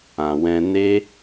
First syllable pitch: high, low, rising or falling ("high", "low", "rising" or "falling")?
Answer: low